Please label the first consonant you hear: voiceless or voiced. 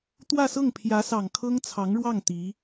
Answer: voiceless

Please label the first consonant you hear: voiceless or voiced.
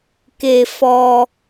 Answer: voiceless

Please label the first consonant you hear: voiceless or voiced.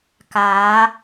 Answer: voiceless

